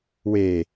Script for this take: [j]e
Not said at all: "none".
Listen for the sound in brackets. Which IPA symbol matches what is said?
w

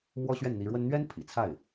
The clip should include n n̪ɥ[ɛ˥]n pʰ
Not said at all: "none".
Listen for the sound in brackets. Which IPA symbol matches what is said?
ɛ˥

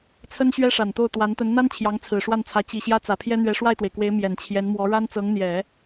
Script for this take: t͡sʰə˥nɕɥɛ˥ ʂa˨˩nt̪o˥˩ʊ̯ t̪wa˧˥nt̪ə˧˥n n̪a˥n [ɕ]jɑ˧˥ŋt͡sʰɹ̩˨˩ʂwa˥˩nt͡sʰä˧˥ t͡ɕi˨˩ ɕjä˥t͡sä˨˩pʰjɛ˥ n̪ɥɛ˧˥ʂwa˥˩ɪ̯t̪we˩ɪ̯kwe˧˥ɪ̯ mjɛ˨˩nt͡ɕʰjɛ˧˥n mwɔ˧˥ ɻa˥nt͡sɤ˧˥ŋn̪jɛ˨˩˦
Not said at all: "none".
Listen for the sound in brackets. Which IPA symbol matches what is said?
t͡ɕʰ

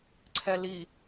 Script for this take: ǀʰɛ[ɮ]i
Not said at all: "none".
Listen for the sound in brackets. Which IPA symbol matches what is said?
l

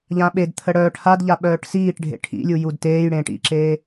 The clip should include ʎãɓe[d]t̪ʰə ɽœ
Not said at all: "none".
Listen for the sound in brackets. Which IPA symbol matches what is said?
d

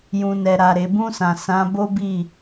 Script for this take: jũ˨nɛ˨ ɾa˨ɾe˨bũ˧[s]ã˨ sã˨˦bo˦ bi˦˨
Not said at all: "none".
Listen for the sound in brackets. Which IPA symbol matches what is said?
s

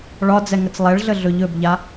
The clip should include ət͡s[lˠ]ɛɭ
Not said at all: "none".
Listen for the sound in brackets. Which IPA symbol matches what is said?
lˠ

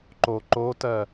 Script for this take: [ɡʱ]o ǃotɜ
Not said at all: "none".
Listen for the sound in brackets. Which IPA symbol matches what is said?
ǃ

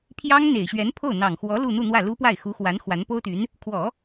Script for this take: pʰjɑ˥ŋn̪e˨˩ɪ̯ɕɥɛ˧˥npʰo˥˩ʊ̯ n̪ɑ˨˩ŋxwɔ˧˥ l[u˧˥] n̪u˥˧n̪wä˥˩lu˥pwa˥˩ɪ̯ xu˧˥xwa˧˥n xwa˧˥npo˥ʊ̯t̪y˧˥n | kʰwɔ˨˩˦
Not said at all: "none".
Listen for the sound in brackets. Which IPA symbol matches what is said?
u˥˧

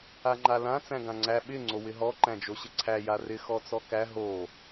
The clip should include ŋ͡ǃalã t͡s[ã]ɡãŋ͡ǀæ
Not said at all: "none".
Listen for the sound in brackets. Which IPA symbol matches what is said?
æ̃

